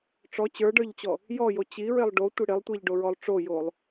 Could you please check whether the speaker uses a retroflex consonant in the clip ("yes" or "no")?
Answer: yes